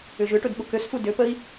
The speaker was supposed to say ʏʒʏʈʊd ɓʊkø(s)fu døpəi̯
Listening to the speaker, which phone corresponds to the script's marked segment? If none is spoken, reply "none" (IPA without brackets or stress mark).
s